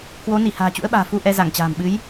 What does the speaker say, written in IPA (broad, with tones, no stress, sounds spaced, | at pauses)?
k w o˨˦ n i˧˩ h a̤ː˨˩ t͡ɕ ṵ˧˥ ə̯ ɓ a̤ː˨˩ f u˧ ʔ ɛ˧ z a˧˩ ŋ t͡ɕ a̤ː˨˩ m ɓ ɨ˨˦ j